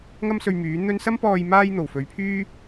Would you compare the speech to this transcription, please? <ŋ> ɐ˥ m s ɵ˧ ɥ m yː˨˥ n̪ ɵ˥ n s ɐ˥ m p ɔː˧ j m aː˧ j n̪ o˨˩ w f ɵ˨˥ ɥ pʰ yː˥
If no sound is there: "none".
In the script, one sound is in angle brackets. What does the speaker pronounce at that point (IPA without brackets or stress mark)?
ŋ